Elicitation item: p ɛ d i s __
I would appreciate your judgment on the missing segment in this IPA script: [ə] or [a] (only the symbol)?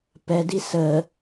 ə